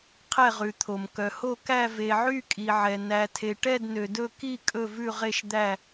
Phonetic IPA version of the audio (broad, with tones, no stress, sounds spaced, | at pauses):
qʰ ɛ˥˧ ʁ ʉ˨ t̪ʰ o˨ m k œ˨ h o˥˧ k æ˥˧ v e˨ ʕ y˥˧ kʼ i˨ ʕ ɛ˨ n æ˨ tʰ e˨ ʈ ɛ˥˧ d n ø˨ d ɵ˥˧ k i˥˧ kʼ ɵ˥˧ v ʉ˥˧ ʁ e˥˧ ʃ d̪ æ˥˧